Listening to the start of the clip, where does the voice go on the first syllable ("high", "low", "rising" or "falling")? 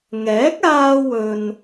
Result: rising